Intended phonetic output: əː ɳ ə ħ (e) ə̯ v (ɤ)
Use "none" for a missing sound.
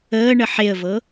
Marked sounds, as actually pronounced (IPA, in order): e, ɤ

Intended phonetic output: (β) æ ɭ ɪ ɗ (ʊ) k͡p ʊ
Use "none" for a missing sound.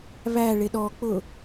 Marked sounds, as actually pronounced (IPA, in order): β, ɔ

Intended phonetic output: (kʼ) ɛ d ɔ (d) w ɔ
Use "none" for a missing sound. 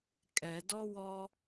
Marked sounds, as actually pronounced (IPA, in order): kʼ, none

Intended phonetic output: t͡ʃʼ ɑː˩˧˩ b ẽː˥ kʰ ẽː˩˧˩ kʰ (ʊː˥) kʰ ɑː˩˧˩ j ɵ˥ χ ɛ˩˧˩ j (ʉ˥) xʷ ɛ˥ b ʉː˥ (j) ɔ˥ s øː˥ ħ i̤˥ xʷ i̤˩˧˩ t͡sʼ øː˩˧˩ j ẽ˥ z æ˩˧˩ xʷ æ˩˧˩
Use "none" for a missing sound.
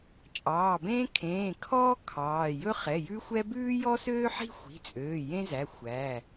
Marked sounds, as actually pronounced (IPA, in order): ɔː˥, ʉ˥, j

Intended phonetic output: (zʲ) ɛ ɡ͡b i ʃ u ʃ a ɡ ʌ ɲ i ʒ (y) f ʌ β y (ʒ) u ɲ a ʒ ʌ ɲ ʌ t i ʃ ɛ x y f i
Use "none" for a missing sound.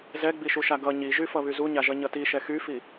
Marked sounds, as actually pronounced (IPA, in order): z, y, z

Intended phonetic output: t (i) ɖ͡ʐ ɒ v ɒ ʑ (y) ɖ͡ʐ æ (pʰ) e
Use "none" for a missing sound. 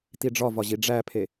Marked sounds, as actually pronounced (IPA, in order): i, i, pʰ

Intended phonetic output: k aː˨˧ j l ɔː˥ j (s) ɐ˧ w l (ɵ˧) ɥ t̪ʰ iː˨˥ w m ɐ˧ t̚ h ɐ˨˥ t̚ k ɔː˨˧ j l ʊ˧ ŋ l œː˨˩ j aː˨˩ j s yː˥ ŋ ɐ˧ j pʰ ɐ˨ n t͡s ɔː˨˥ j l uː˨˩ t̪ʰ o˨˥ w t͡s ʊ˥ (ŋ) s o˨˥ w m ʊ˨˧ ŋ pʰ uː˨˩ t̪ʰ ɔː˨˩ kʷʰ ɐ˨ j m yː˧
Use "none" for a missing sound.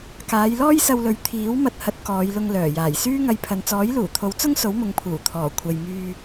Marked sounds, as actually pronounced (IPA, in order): s, ɵ˨˥, ŋ

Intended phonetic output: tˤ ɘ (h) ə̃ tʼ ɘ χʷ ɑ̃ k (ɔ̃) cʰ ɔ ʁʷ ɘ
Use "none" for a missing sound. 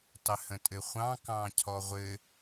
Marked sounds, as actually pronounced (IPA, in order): h, ɑ̃

